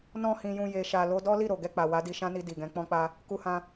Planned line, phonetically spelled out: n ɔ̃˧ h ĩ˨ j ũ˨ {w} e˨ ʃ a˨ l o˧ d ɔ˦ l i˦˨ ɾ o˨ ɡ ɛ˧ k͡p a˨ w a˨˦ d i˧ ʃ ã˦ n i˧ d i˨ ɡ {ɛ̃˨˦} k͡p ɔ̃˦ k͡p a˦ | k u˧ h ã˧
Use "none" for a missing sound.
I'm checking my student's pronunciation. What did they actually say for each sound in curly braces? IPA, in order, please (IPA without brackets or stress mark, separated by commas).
j, ɛ̃˨˦